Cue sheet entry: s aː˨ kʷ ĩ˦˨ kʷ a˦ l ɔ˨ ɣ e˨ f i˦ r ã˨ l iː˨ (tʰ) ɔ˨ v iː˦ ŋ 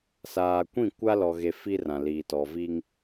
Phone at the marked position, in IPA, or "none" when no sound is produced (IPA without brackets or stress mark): t